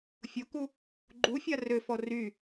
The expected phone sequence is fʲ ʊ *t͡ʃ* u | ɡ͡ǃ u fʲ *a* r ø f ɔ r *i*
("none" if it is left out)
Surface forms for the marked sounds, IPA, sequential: k, a, y

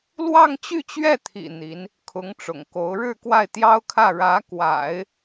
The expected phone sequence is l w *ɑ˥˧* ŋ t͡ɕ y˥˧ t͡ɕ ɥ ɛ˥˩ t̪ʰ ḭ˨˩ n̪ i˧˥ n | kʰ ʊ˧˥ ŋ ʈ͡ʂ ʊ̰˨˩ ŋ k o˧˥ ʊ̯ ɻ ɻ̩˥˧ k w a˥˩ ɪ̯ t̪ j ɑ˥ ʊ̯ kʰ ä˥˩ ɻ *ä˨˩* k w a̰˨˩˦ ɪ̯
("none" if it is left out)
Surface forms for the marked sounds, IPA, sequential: ɑ˥˧, ä˧˥

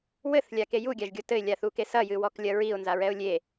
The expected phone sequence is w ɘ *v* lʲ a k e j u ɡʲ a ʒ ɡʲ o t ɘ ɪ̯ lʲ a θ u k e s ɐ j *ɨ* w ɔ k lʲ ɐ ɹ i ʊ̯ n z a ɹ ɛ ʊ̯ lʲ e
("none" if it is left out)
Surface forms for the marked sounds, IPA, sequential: θ, ɨ

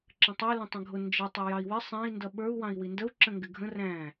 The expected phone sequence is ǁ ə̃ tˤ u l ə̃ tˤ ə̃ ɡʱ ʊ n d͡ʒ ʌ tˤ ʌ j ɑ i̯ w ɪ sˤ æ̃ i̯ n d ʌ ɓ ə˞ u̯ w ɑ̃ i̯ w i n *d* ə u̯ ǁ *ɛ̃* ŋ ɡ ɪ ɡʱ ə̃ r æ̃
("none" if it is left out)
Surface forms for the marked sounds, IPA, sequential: d, ə̃

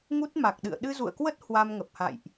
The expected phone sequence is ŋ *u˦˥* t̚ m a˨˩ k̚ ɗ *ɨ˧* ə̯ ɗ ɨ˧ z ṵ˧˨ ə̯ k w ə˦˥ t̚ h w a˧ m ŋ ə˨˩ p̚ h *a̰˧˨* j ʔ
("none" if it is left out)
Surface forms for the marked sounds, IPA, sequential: u˦˥, ɨ̰˧˨, a̰˧˨

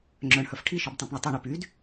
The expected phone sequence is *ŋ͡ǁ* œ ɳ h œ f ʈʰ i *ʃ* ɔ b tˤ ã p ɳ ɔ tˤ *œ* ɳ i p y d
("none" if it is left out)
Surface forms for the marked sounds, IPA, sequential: ŋ͡ǁ, ʃ, œ

